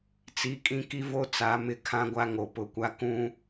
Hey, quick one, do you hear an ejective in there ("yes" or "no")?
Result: yes